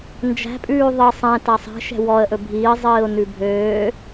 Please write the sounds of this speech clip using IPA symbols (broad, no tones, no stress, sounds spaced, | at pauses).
n d͡ʒ æ̤ pʼ ʉː ðˤ i sˤ ɛ̃ t æ sˤ ɛ̤ ʃ ɛ̤ w ɔ ə̯ ʔ ɵ bʱ iː zˤ iː ʊ̯ n ʉ bʱ øː